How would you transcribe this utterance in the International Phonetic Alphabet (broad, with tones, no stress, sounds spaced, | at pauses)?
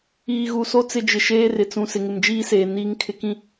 iː˨ ɣ u˨ s o˦ t͡s ɪ˦ d͡ʒ ɪ˨ ʃ eː˦ r ɪ˨ t͡s ũ˨ s ɪ˨ ŋ ɪ˨ m d͡ʒ iː˦ s eː˨ n iː˦ ŋ kʰ ɪ˦ k ĩ˦